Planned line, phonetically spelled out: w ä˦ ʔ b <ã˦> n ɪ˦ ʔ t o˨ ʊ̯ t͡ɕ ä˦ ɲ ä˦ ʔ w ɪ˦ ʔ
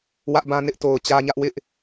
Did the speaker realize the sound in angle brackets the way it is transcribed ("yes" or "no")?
yes